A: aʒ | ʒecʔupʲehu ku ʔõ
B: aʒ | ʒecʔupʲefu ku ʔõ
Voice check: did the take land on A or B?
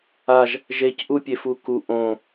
B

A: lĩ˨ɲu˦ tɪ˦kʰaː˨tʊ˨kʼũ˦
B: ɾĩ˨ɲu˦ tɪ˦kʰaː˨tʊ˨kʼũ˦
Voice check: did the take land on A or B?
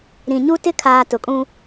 B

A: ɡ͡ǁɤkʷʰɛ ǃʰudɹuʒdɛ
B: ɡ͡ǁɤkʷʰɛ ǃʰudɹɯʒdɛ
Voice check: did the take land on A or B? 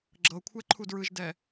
B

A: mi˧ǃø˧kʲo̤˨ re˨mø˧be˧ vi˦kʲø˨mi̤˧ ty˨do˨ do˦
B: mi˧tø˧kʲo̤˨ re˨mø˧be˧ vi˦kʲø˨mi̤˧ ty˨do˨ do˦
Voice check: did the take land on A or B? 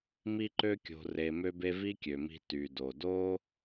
A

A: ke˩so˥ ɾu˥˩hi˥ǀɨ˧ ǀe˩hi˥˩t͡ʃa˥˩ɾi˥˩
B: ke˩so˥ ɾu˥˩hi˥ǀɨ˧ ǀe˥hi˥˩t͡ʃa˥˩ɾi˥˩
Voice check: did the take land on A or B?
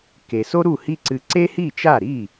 B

